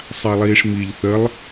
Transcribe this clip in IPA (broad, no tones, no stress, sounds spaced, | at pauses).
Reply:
sˤ a lˠ iː ʂ m i ʎ θ ə lˠ